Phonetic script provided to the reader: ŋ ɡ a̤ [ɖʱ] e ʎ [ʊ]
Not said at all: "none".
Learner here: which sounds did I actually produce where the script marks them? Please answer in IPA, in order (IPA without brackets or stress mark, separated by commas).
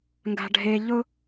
ɖʱ, ʊ